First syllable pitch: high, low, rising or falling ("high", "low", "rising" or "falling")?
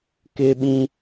high